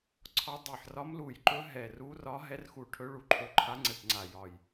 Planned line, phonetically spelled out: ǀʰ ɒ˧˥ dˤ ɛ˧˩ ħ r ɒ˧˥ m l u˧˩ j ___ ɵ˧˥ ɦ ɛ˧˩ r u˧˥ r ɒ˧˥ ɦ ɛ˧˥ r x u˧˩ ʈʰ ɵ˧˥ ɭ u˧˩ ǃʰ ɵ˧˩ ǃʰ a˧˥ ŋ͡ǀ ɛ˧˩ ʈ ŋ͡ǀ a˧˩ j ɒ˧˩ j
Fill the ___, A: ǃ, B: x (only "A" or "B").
A